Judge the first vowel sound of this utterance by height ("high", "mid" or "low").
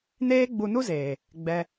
mid